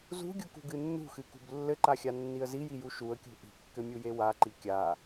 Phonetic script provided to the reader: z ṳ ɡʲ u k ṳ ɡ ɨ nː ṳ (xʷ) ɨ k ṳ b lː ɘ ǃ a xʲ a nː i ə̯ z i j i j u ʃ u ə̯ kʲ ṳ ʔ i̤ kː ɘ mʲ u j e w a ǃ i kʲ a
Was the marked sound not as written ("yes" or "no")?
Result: yes